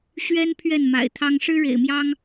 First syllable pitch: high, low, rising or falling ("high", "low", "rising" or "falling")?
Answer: high